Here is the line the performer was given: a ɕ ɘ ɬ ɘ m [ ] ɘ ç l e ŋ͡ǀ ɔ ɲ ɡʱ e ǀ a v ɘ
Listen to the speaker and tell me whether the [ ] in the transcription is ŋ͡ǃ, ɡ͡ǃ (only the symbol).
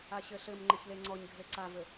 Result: ŋ͡ǃ